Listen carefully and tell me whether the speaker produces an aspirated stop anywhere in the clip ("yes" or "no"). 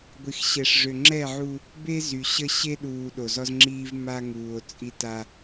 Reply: no